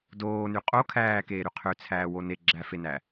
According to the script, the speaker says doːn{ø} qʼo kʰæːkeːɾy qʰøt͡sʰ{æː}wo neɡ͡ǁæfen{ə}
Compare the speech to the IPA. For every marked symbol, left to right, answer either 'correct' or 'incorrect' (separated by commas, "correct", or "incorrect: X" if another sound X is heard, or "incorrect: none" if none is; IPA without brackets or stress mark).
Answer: incorrect: y, correct, incorrect: æ